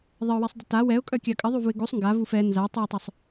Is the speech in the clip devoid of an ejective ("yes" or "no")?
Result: no